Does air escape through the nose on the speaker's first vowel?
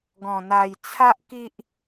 yes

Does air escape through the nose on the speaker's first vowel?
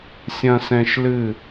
yes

